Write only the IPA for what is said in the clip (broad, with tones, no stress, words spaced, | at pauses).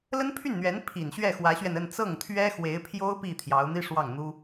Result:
lə˥npʰy˥˩nn̪ɥɛ˧˥n pʰi˨˩n ɕɥɛ˥˩xwä˧˥ɕɥɛ˧nə˥˧n t͡sɤ˥˩ŋt̪ʰɥɛ˥xwe˧˥ɪ̯pʰjo˥ʊ̯ pi˥˩t̪ʰjɑ˧˥ʊ̯n̪i˥ʂwɑ˥˩ŋ n̪u˥